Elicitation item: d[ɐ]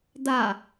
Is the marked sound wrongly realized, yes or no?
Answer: yes